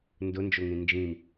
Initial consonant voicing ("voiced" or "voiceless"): voiced